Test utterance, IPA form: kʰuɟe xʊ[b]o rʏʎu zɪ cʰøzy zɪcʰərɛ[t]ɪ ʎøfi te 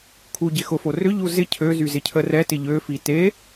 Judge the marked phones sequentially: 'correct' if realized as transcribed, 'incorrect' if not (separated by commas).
incorrect, correct